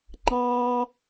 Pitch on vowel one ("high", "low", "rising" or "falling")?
high